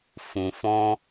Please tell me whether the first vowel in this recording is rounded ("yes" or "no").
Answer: yes